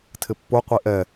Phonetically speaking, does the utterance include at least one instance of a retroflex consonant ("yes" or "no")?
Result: no